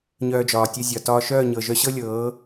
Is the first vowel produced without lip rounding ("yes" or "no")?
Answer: no